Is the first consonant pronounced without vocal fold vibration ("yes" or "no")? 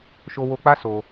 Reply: yes